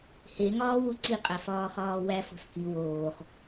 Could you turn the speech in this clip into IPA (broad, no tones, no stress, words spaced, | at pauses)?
heŋɒː wuǀiqʼæ fɒːχɒːwæfo̤s ki woːχ